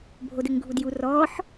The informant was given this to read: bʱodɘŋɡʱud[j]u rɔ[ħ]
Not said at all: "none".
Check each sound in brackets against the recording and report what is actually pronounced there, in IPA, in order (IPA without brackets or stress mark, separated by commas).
j, ħ